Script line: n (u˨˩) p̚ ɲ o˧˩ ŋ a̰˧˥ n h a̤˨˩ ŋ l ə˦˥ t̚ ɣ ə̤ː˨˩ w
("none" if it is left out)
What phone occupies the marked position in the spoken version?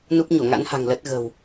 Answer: u˦˥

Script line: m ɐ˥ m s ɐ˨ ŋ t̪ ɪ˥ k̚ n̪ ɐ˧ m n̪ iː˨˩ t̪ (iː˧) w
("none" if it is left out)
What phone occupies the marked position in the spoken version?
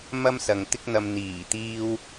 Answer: iː˧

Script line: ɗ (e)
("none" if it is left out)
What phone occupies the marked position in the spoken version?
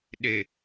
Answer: e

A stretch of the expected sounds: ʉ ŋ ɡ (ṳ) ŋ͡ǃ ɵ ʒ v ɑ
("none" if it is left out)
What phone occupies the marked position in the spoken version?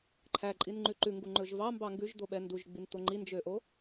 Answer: u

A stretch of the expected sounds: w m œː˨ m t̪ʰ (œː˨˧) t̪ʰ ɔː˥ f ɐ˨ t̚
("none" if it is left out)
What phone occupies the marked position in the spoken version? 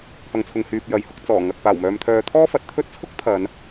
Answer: œː˨˧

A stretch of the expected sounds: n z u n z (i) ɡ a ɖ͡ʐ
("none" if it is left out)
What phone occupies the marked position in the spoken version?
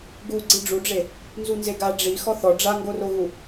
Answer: e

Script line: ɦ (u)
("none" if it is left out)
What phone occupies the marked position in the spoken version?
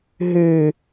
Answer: ʉ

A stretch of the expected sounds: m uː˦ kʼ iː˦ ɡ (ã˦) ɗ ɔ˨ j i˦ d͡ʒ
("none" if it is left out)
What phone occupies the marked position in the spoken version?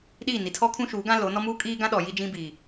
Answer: ã˦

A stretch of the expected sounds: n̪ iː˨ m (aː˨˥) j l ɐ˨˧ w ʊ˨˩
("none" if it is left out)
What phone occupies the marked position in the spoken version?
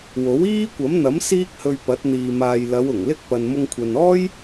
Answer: aː˨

